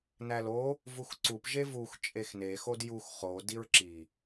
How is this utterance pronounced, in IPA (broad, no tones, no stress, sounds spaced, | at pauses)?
n æ l o | v u x ǀ u p ʒ e v u x t͡ʃʼ e x n e x o d j u x χ o d i ɹ ǁ i